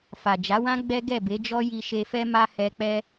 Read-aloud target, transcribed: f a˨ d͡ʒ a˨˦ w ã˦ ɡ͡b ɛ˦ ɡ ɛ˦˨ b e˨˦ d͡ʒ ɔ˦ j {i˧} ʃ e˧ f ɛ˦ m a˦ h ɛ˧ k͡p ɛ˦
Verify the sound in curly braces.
correct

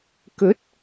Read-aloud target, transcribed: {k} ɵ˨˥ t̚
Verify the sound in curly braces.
correct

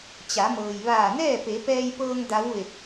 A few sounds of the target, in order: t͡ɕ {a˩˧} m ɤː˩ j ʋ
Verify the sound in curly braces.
correct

